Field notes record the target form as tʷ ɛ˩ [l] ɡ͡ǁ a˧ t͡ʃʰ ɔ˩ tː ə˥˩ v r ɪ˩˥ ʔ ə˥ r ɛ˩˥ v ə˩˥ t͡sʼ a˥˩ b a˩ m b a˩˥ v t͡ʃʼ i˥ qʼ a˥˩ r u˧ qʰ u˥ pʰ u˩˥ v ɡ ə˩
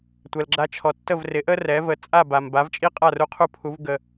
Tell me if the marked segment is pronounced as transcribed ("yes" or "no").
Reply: yes